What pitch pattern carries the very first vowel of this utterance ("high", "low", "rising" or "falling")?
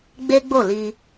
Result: high